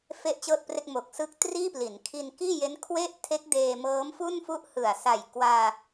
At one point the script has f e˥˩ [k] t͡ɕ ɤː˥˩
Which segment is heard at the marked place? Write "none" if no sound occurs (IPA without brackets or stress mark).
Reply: ʔ